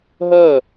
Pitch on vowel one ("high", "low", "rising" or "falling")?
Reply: falling